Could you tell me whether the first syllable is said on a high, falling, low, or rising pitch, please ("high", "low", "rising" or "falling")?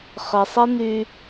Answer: low